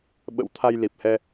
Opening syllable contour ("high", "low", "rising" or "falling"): rising